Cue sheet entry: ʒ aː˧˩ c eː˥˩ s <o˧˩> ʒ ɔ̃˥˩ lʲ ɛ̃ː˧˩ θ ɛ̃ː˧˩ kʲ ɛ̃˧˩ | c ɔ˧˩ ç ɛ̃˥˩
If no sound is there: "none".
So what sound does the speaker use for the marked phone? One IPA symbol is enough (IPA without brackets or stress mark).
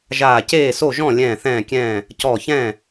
o˥˩